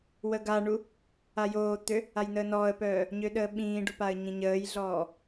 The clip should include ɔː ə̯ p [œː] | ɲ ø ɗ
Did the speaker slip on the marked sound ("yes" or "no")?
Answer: no